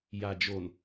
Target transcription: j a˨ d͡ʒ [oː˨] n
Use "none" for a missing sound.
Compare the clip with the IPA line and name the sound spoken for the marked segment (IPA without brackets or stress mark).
o˨